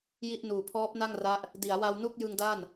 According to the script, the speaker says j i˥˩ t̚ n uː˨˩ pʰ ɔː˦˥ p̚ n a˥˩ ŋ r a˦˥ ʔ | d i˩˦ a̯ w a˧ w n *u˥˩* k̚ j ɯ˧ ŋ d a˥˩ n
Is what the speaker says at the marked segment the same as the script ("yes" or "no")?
yes